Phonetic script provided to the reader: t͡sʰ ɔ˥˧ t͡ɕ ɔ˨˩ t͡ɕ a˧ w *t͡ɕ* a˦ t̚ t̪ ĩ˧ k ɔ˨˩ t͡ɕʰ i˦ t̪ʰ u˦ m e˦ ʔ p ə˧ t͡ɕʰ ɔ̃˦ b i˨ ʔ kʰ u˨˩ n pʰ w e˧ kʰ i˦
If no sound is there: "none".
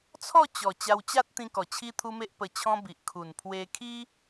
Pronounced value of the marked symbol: t͡ɕ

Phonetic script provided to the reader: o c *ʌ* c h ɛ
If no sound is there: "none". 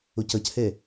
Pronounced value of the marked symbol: ʌ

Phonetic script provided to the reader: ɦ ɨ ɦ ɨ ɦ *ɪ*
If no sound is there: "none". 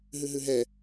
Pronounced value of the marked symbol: ɛ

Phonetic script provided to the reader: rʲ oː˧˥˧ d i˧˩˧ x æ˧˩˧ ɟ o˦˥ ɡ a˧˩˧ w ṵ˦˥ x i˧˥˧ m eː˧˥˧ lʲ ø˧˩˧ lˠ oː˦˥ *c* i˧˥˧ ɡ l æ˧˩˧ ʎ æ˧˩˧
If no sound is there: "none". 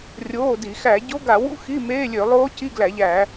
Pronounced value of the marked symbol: c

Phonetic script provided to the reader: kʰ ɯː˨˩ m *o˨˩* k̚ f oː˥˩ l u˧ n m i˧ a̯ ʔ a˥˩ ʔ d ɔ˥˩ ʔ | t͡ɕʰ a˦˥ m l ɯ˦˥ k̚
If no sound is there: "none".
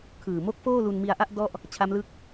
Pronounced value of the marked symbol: o˦˥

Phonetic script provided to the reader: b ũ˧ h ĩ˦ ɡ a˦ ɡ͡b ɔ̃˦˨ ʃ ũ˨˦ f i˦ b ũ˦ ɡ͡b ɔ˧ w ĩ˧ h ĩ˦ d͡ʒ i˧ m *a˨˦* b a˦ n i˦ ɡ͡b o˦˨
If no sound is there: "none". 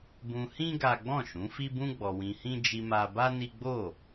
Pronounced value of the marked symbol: a˧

